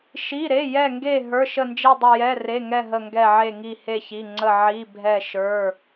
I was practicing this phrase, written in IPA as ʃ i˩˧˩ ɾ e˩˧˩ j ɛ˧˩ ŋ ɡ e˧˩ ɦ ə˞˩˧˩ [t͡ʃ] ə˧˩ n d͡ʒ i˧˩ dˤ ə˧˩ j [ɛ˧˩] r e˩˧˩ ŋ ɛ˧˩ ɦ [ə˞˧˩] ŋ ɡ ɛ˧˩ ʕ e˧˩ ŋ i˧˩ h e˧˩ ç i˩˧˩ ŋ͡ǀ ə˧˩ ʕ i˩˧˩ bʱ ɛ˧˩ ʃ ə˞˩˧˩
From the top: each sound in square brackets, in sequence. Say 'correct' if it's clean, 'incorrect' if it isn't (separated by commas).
incorrect, incorrect, incorrect